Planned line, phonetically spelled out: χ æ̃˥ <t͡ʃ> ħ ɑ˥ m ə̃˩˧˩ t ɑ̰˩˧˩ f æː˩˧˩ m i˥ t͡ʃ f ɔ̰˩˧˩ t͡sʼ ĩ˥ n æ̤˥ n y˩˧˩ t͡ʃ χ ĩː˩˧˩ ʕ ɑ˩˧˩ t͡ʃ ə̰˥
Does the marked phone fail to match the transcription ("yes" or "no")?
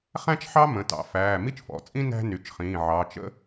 no